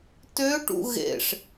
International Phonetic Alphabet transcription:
t ø ʈ ṵ ɣ ḛ ʂ

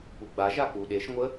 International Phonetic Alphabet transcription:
p u ɡ͡b a ʒ a k͡p u ɗ e ʃ ŋʷ ə

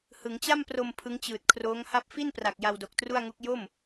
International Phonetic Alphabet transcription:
h ɯ˩˦ ŋ t͡ɕ a˥˩ m p r o˧ m pʰ ɯ˦˥ ŋ t͡ɕ ɯː˨˩ t̚ kʰ r oː˦˥ ŋ h a˥˩ p̚ f i˥˩ n p r a˨˩ k̚ j a˧ w d o˨˩ k̚ t r u˥˩ a̯ ŋ u˦˥ k̚ j o˥˩ m

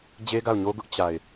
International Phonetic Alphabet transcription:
d͡ʑ e˦ ɡ a˦˨ ʊ̯ ɲ o˦ ɡ ʊ˦ ʔ t͡ɕ a˨ ɪ̯

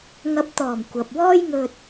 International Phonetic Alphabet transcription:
ŋ ɐ˨˥ p̚ t̪ ɔː˨˩ m kʷ ɐ˨ p̚ w ɔː˥ j ŋ ɵ˧ t̚

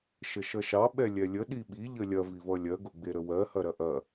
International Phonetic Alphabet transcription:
ʃ ə ʃ ʌ ʃ ɑ ɓ ɛ lʲ ɛ lʲ ə ɗ i ɓ i ʎ ə lʲ ɐ v i v ʌ lʲ ɜ ɡ o ɡ͡b e ɾ ə w ɜ h ɐ ɾ ɐ ʔ ɐ

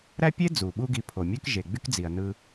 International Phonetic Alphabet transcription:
ɾ æ˥ pʲ e˥ d͡z u˩ ɓ u˥ ɡ i˧ pʰ o˩ mʲ ø˥ k ʒ e˩ ɡ͡b y˥ k d͡z i˩ ɐ̯ n ɯ˧

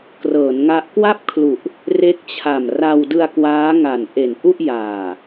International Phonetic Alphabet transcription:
k r ɤː˩˦ n ŋ a˦˥ ʔ k w a˥˩ p̚ kʰ l u˨˩ ʔ | r e˦˥ k̚ t͡ɕʰ a˨˩ m r a˧ w d ɯ˧ a̯ k w aː˦˥ ŋ a˨˩ n ʔ e˨˩ n ʔ u˥˩ ʔ j aː˨˩

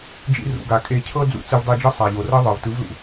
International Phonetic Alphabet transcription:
d͡ʒ ḭ˧ r ṵ˨ ɡ a˨ kʼ e˧ cʰ ɤ˦ d͡z ṵ˨˦ t͡s ɯ˧ v dˤ i˧ d͡ʒ ɤ˦ sˤ a˨ ʎ o˨ r ɤ˦ ðˤ ɤ˨ v t ɯ˨˦ v l ṵ˨

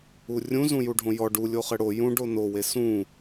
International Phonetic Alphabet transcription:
u rʲ ũ z ũ j u ɖʱ õ j ɔ ɖ u lʲ o χ ɘ ɽ o j ũ ɖ o n o w e s ũ

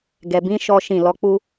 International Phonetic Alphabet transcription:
ɡ ɛ˨ b ĩ˨˦ ʃ ɔ˦ ʃ ĩ˦˨ l ɔ˧ k͡p u˦

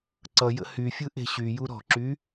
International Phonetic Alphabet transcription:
ǀ ʌ j ə̰ h y fʲ ɯ ʔ e̤ ɕ y j u ɾ ɔ̤ ǁ y

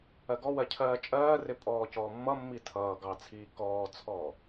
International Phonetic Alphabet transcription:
ɜ ɡ ɔ w ɜ cʰ ɜː t͡ʃʼ ɜː r ɪ pʼ ɔː c ɔː mː ʌ mː i tʰ ʌː ɡ ɑ t͡sʰ iː k ɔː t͡sʰ ɔː

